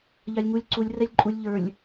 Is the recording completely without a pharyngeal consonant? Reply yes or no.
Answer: yes